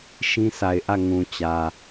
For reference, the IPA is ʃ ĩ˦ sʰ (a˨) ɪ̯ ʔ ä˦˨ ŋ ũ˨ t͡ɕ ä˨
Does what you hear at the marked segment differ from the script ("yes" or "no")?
no